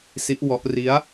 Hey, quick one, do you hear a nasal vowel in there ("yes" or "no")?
no